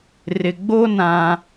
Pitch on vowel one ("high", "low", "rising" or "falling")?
low